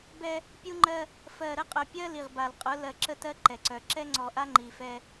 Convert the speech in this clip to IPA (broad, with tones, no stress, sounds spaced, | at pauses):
b ɛ˦ | pʲ u˦ ŋ͡ǃ ɜ˦ | f ɜ˨ ɾ ə˦ qʼ œ˨ pʲ ɜ˦ l i˨ ʁ b a˨ l qʼ ʊ˨˦ l ɜ˨ ǁ ə˦ t ɜ˦ ǃ ɛ˨ ǀ œ˨ ǁ ɛ˦ ŋ͡ǀ ɔ˨ ʔ a˦ ŋ͡ǃ i˨ f ɛ˦